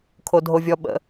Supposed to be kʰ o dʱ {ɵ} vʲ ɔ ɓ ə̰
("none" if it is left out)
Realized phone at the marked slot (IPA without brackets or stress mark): o